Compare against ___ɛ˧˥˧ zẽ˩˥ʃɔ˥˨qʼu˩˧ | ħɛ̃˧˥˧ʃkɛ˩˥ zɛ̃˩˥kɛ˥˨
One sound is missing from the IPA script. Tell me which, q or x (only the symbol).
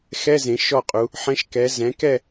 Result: x